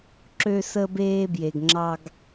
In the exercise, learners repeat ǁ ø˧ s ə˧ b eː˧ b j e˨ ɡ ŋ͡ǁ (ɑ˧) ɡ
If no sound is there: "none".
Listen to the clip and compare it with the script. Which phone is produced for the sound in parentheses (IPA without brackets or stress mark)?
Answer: ɑ˧